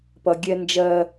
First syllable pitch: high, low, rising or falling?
low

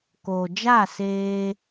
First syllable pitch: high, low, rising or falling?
low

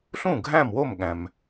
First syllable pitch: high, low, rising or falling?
falling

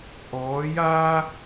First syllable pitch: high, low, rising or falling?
rising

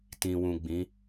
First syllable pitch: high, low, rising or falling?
low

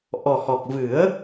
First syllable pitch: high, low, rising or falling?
low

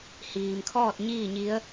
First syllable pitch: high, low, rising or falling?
low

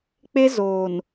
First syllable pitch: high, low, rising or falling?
high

